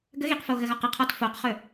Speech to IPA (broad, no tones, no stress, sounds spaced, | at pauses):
ɡ ə ɣ i q f o ɣ ə ɣ ɔ q ə qʰ ɔ t f o q χ ɵ